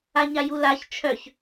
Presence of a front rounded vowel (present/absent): present